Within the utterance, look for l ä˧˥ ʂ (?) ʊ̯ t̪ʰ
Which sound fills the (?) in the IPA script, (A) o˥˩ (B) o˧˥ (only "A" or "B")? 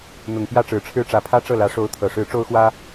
B